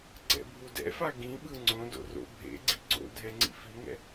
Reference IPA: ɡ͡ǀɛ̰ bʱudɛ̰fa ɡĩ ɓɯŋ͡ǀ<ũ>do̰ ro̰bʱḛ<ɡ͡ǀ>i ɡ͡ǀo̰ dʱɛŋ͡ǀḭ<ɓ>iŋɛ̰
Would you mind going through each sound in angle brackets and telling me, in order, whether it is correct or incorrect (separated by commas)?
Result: incorrect, correct, incorrect